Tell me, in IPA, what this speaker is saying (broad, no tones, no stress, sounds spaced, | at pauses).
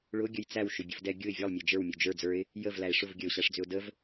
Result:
ɭ ʊ ɡʲ ə j t͡s æ w ʃ ʏ bʲ ə v d ɛ ɡʲ ʊ ɪ̯ vʲ ə lˠ mʲ ɛ d͡ʒ ə˞ w mʲ u d͡ʒ ə˞ d͡z ə˞ ɪ̯ | j ə v l æ ɪ̯ ʂ ʊ v ɡʲ ə ʊ̯ ɕ æ ʂ d͡z ʏ ʊ̯ d ə v